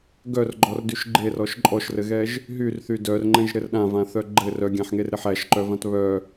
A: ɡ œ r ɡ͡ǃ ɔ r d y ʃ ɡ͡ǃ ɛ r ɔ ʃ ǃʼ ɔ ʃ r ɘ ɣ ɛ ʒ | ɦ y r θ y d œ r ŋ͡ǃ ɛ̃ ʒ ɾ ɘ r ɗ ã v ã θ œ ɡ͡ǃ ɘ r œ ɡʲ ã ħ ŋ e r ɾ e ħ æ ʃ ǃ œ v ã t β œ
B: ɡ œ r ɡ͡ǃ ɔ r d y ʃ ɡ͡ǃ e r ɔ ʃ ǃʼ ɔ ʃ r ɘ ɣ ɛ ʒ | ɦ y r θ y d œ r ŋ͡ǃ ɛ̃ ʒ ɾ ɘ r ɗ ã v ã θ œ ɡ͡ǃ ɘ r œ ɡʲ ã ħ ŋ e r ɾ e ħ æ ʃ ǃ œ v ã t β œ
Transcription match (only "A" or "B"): B